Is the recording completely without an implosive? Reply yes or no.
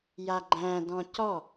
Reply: yes